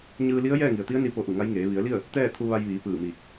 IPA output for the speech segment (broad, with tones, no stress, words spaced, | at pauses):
ɲɯː˧li˧˥ə̯ jɛː˥˨ŋi˩ə̯t̪i˧˥ə̯ni˧ po˧ʔu˧˩ŋa˧˥jŋeː˩˧ ʋi˩˧ə̯li˥˨ə̯ | t̪ɛː˥˨t̪ʰu˧ʋa˧j ʋiː˩˧pɯː˧˩miː˧˩k̚